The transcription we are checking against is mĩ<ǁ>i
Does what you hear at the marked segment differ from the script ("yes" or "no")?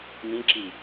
no